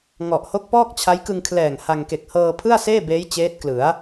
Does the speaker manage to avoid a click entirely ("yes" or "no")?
yes